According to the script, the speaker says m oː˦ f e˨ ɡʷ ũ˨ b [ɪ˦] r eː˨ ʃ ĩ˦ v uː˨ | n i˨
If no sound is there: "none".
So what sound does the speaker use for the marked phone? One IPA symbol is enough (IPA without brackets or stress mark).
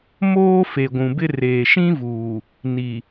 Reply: ɪ˦